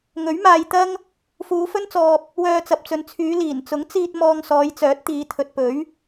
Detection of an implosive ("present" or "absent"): absent